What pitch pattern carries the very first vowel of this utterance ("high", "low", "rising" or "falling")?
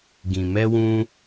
low